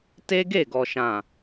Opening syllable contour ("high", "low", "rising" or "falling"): high